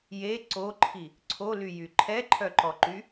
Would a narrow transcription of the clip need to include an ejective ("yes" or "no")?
no